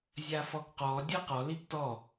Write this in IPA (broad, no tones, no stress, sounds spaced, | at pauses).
zʲ a f ɔ ɡ q ɔ dʲ ɤ q ɔ l i ɡ t ɔ